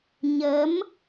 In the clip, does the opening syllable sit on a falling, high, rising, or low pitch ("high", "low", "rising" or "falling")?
rising